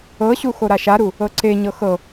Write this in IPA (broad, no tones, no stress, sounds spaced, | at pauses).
ɤ ɕ u x o ɾ a ʃ a ɾ u | ɤ ǀ e ɲ ɤ x ɤ